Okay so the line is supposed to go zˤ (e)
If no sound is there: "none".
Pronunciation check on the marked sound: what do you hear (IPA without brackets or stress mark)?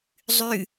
y